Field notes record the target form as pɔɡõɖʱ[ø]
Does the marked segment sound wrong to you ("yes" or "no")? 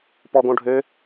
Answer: no